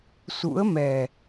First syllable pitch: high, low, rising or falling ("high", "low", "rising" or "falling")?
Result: rising